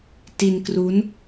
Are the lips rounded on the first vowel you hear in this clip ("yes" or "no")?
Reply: no